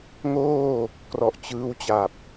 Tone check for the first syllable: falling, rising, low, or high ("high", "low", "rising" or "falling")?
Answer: falling